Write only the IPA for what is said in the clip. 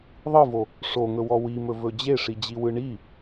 ðˤ ɯ v o | ʂ o ŋ ɵ w ɔ w i m ɵ v ɵ d͡ʑ e ʂ i d͡ʑ i w ɯ ɳ i

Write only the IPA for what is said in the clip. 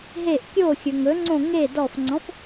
ɦ e ʔ kʲ o xʲ ɵ ŋ ɵ ŋ͡ǀ õ ŋ e d ɔ f ŋ͡ǀ ɔ̃ f

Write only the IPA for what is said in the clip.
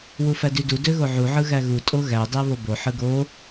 w u f æ d y d u d ø ɣ o ʕ u ʕ ɯ ɣ æ ɣ u tʼ o ɣ æ dˤ æ β o b o ħ ɯ ɡ o

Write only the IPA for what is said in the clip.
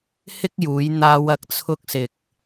h ɪ˥ k̚ j uː˨˧ j n̪ aː˧ w ɐ˧ k̚ t͡sʰ ʊ˧ k̚ s ɪ˨ k̚

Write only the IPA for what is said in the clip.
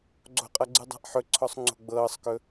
ɡ͡ǀ o̤ qʼ ʌ ɡ͡ǀ ɨ dˤ a̤ ʔ ħ ɵ ǀʰ ɔ sˤ ŋ͡ǀ o̤ ɡ͡b ɤː sˤ k ɵ

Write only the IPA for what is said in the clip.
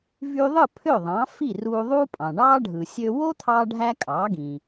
v y˧ ðˤ ɯ˥˩ pʰ ø˥˩ ðˤ ɑ̃˩˥ f i˥˩ r uː˧ ðˤ uː˥ pʼ ɑ̃˩ ɳ ɑː˥ ɖʱ ɯ˩ sʲ ø˧ w o˥ t̪ʰ ɑː˥ ɖʱ æ˥ kʼ ɑː˩˥ ɡ ĩ˩

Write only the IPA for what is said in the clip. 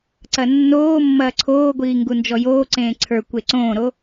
ǀ ɐ nː oː mː ɐː ǀʰ oː ɡʷ iː ŋ ɡ u n d͡ʒ ɔ j oː ǀ ẽː ǀʰ ə˞ kʷ e ǀ õː ɾ o

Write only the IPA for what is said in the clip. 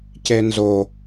c e n z o

